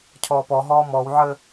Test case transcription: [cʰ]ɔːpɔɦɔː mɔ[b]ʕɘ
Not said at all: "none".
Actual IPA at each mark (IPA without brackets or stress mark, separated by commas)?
cʰ, w